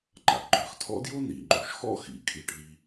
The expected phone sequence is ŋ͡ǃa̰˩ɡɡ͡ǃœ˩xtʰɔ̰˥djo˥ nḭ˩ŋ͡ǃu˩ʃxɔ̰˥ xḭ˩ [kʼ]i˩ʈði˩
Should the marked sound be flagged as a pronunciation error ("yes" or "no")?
no